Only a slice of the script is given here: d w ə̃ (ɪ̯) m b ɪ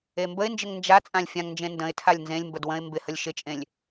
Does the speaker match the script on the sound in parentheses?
yes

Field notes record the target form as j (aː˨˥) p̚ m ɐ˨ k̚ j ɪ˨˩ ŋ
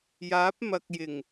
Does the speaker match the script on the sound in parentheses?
yes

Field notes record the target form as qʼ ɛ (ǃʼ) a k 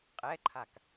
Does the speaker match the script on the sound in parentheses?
no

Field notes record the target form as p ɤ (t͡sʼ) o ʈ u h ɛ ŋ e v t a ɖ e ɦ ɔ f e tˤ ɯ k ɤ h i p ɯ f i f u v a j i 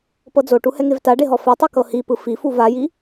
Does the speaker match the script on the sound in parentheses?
no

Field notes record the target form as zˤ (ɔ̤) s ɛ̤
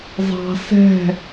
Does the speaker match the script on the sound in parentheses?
no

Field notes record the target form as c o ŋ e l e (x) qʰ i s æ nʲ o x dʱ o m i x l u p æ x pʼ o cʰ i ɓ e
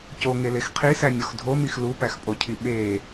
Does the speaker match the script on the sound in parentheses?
yes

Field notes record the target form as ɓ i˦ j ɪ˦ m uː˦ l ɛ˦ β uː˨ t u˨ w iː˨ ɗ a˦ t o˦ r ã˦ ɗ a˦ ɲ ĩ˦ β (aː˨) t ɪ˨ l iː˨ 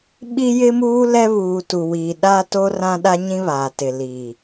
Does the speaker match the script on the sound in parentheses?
yes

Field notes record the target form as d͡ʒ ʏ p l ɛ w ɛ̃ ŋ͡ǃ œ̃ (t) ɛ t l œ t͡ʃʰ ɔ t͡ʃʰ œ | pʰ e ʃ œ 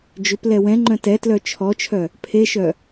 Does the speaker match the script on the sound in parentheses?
yes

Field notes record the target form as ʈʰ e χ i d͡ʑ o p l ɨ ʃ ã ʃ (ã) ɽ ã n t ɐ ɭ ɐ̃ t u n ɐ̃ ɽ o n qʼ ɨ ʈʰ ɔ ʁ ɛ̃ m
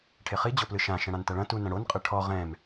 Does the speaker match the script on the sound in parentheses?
no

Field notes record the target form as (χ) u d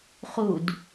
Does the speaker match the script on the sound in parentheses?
yes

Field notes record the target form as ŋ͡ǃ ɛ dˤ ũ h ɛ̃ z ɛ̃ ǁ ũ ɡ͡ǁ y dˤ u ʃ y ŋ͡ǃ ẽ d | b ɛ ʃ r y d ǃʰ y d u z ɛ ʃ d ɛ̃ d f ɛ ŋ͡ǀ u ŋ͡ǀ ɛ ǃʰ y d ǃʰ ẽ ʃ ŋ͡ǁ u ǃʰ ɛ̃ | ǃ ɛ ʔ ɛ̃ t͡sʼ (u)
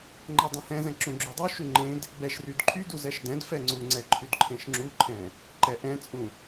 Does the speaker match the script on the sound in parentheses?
no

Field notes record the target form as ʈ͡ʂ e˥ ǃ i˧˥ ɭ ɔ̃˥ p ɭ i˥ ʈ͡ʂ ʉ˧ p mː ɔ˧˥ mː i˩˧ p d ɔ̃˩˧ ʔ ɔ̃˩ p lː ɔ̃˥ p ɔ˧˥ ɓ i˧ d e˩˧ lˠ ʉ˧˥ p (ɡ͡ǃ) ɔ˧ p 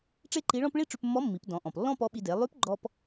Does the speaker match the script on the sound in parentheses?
yes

